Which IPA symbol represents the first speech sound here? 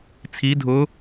t͡sʰ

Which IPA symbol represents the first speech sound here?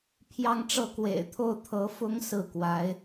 pʰ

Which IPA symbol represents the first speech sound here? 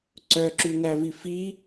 ǀ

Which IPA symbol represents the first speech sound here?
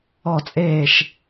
ɔ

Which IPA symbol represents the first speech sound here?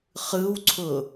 χ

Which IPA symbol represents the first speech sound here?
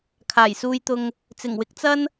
kʰ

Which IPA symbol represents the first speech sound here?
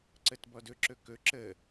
ǀ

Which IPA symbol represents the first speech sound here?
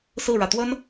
s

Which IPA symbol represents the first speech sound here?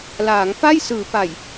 l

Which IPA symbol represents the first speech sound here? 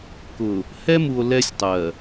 k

